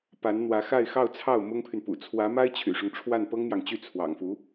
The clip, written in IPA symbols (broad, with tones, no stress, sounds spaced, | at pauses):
p a˧˥ n n̪ w ä˧˥ x a˥˧ ɪ̯ x ɑ˥˧ ʊ̯ t͡sʰ ɑ˥˩ ʊ̯ m ʊ˥ ŋ pʰ y˨ n p ṵ˨˩ t͡sʰ w ä˧˥ m a˥ ɪ̯ t͡ɕʰ y̰˨˩ ʂ ʊ˦ ŋ ʈ͡ʂʰ w a˥˩ n p ɤ˥ ŋ n̪ j ɑ˨ ŋ t͡ɕ y˥˩ t͡sʰ w ɑ̰˨˩ ŋ f u˧˥